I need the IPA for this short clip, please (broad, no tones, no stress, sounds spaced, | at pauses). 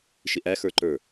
ʃ ɪ ʔ æ x ə˞ ǃ ə˞